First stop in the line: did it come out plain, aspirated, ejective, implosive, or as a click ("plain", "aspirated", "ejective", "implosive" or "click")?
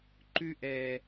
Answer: click